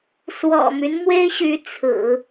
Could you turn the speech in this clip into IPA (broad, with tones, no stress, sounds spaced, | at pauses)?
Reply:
s w ɔ̰˨˩ m y˦ n m w e˥ ɪ̯ ɕ y˧˥ t͡sʰ ɹ̩˨˩˦